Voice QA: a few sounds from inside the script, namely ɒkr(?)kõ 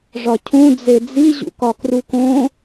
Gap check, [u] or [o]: u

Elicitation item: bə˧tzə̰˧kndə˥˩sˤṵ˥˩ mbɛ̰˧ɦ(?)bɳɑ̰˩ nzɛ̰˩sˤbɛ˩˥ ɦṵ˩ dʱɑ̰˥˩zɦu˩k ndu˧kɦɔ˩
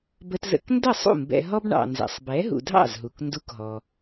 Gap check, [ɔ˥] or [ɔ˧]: ɔ˥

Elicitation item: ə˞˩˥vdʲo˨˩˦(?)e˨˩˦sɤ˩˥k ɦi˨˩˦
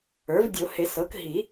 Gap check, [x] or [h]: h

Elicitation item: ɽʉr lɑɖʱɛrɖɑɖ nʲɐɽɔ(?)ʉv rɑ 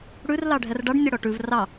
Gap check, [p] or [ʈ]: ʈ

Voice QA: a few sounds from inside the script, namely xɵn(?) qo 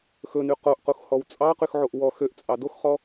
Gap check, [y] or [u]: y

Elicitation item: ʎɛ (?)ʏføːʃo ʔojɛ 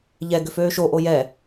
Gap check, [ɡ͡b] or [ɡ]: ɡ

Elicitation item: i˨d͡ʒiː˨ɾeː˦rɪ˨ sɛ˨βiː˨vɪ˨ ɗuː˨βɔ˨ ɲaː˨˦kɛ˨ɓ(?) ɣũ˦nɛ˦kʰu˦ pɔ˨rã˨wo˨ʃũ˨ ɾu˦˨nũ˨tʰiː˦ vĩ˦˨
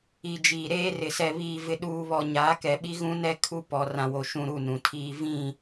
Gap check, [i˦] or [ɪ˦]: i˦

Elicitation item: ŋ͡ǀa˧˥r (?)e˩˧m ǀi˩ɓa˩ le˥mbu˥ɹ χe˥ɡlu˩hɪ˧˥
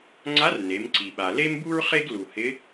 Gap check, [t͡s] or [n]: n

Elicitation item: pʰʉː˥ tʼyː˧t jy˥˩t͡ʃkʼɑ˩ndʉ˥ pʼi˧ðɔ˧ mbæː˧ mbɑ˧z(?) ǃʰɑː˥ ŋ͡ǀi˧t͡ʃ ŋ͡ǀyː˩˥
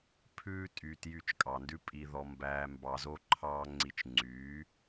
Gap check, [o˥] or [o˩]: o˥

